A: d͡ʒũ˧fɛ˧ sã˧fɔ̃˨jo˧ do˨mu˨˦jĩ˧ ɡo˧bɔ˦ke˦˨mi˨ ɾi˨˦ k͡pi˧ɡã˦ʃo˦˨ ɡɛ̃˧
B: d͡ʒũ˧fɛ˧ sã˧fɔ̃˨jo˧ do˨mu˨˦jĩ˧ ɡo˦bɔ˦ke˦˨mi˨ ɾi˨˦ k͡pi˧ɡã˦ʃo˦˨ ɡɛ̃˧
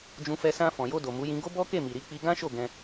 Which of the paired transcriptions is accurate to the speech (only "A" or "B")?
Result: B